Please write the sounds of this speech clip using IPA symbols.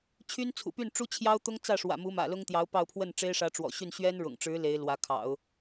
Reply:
t͡ɕʰ y˥ n t͡sʰ ṵ˨˩ p y˥˩ n ʈ͡ʂ u˥ t͡ɕʰ j ɑ˥ ʊ̯ t̪ ʊ˥ ŋ t͡s ä˥˩ ʂ w ä̰˨˩ m u˧˥ m ä̰˨˩ l ʊ˥ ŋ t̪ j ɑ˧˥ ʊ̯ p ɑ˥˧ ʊ̯ pʰ w ə˥˩ n ʈ͡ʂ e˥ ɪ̯ ʂ ä˧˥ ʈ͡ʂ w ɔ̰˨˩ ɕ y˥˩ n ɕ ɥ ɛ˥ n ɻ ʊ̰˨˩ ŋ ʈ͡ʂ ɻ̩˧˥ l e˧˥ ɪ̯ l w ä˧˥ kʰ ɑ̰˨˩˦ ʊ̯

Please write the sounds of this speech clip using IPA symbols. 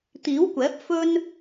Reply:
t̪ iː˨˥ w kʷ ɛː˨˥ p̚ f ɵ˥ n

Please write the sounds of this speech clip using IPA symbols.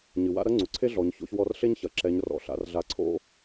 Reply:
ɲ ɨ˩ w a̰˥ ɾ ɐ˥ ŋ͡ǀ u˩ ǀʰ e˥ ɮ ɔ˩˧ ɲ ç o̰˧ ç w ɔ˧ r ɬ e˥ ɲ ç ɐ˩ ǁ ɛ˩˧ ɲ r ɔ̰˩ ɬ a̰˩˧ r ɮ a˩˧ ǀʰ o̰˧

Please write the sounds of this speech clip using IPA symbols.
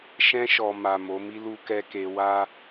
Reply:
ʃ ɛ̃˧ ʃ ɔ˨ m a˨ m o˨˦ m i˦ l u˦ k ɛ˦ k e˧ w a˦

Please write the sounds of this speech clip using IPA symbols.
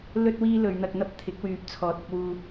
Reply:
l ɵ˧ t̚ w iː˧ l ɵ˨˧ ɥ n̪ ɐ˧ k̚ n̪ ɐ˥ p̚ t̪ʰ ɪ˨˥ k̚ w yː˧ p̚ t͡sʰ ɔː˨˥ t̚ ɐ˧ k̚ w uː˧

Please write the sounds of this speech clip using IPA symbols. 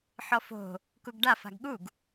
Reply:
ħ ɔ f o̤ | k u ɡ ɖ a f a̤ ɡ ɠ u ɡ

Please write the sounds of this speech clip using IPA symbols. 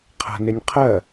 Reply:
qʰ a̤ n ɪ nʲ qʰ ɜ

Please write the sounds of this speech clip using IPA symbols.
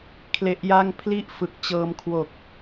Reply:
kʰ l e˦˥ ʔ j a˥˩ ŋ pʰ l i˦˥ ʔ f ɯ˨˩ k̚ t͡ɕ ɤː˧ m kʰ w o˨˩ k̚

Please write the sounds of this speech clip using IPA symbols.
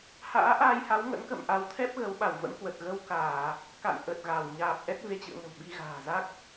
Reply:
h a̰ː˧˥ ʔ aː˧ j h a˨˦ w ŋ ə̰˧˥ n k ə̰˧˨ m ʔ a˨˦ w t̪ʰ ɛ˦˥ p̚ ɣ ə˨˦ w ɓ a˧˩ w v ə̰˧˥ n k w ə˨˩ t̚ ɣ ə˧ w k aː˧˩˨ | k a̰˧˨ n ʔ ə˨˩ t̚ ɣ a˧˩ w ɲ aː˨˩ p̚ ʔ ɛ˦˥ t̚ v e˧ t͡ɕ ɨ̰˧˨ ə̯ ŋ ə̤˨˩ w ɓ i˧ ɣ a̤ː˨˩ z a˦˥ k̚

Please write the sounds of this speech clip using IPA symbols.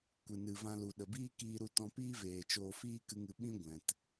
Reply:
kʷ ɨ˨ n ɨ˨ v ã˧ l u˨ ɗ ə˨ b iː˦ k iː˧ ɾ u˧ t ɔ̃˧ p iː˦ v eː˨ t͡ʃ oː˧ f iː˦ k ɨ˧ ŋ ɨ˨ ɓ ĩ˦ ɡʷ ɛ̃˨ t

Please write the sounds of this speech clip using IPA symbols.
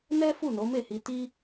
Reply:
n ɛ˦ f u˦˨ n o˨˦ m e˦˨ h i˧ t i˦

